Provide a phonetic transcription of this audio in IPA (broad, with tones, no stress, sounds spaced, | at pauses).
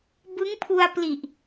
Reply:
b ɯ˦˥ ŋ pʰ u˧ a̯ p l i˨˩ ʔ